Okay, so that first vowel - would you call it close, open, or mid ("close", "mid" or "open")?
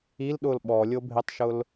close